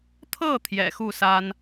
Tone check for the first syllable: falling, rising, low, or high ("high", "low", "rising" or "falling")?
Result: falling